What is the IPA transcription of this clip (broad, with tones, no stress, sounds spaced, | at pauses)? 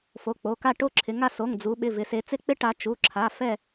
f o˩˧˩ k͡p o˩˧˩ k a˥˨ ʈ o˥˨ ǁʰ ɪ˩˧ ŋ a˥˨ s o˩˧˩ ŋ d͡z u˩˧ ɓ ɪ˩˧˩ v ɪ˩˧ s e˩˧ t͡s ɪ˦˥ k͡p ɪ˦˥ ʈ a˩˧ t͡ʃ u˩˧˩ ǁʰ a˩˧˩ f ɛ˥˨